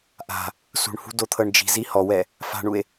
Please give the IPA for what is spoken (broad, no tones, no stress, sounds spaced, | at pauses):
ʔ a̤ | s ṳ ɳ h ṳ d o t̪ʰ ɤ ɳ d͡ʒ i̤ z i h ɔ w ɛ | f a̤ ɳ u e̯